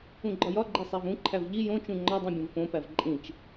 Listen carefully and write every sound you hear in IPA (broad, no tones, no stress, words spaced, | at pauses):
ũɡ͡ǃɒjɒɡ͡ǃe sˤævũǃʰæv ʎi jõt͡ʃũ ŋ͡ǃɒdˤĩ bʲõvfõpæv ǃʼĩt͡ʃ